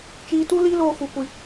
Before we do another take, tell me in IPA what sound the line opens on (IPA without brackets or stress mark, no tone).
t͡ʃ